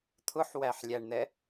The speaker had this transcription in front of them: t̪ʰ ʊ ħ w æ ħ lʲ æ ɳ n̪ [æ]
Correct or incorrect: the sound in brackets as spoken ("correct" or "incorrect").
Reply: incorrect